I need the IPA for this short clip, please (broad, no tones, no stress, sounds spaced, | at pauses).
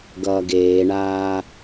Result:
ɡ ʌː ɡ eː ɳ aː